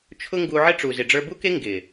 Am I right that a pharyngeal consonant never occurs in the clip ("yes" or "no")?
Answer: no